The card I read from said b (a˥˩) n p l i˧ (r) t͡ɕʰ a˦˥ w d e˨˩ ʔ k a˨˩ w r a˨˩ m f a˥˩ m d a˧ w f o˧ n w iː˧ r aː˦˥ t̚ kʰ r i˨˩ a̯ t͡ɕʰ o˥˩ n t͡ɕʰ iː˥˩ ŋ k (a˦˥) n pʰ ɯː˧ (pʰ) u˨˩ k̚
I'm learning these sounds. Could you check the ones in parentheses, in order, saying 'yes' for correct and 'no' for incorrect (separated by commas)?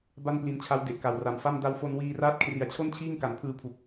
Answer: yes, no, no, yes